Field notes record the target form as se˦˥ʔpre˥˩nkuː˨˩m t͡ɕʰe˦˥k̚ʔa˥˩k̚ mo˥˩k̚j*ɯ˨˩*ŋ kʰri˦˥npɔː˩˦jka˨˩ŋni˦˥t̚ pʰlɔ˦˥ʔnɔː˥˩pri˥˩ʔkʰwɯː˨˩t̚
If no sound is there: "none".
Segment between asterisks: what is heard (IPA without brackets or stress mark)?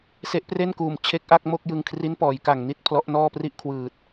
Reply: ɯ˧